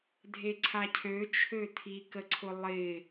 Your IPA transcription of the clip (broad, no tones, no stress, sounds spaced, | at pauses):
dʱ e ǀʰ a cʰ ø t͡ʃʰ ø tʰ i k ə ǀʰ ʊ lˠ ɪ